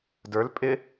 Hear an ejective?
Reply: yes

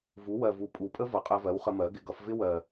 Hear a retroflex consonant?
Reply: no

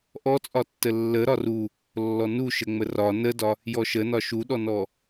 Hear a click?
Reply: no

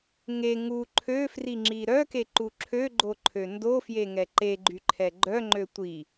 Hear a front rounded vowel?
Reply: yes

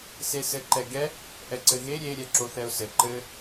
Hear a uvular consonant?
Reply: no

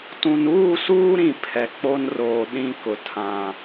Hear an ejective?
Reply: no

